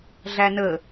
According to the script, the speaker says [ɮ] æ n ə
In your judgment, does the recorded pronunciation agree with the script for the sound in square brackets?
yes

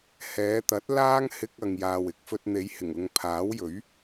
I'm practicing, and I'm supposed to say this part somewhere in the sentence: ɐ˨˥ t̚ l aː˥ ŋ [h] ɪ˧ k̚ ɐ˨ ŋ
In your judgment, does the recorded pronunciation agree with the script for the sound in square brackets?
yes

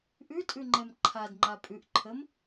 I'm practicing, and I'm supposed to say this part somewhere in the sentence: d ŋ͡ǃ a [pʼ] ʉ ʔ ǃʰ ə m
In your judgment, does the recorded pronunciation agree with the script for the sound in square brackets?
yes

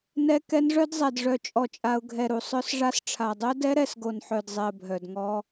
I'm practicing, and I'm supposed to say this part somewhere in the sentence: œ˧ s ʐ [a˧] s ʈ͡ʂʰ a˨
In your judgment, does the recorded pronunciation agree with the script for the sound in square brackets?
yes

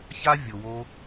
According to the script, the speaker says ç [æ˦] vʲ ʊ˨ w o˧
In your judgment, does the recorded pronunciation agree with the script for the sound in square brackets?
no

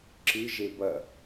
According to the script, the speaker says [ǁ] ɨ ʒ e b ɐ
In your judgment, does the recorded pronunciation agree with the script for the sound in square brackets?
yes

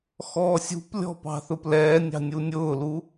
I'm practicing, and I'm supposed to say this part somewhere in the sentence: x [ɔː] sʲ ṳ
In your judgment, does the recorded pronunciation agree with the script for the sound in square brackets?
yes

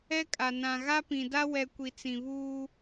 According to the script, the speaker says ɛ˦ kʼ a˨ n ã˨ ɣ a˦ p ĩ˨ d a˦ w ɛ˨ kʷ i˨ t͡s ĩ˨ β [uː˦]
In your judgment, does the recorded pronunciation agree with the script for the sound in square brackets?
yes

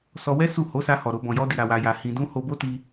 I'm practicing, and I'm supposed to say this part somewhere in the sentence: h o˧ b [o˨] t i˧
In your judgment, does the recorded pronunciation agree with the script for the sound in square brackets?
no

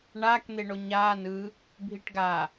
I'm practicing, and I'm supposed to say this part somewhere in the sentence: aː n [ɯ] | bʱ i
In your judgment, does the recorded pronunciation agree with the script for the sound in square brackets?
yes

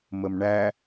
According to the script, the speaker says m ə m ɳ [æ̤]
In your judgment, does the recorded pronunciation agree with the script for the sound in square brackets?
no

